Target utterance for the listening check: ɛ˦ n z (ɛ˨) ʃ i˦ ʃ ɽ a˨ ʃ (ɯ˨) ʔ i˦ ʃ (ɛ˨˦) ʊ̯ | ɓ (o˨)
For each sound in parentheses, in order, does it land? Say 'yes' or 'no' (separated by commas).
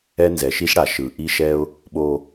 yes, yes, no, yes